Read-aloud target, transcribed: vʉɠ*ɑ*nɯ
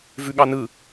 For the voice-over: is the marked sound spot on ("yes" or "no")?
yes